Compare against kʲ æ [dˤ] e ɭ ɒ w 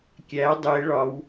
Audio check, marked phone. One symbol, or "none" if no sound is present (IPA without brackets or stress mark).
dˤ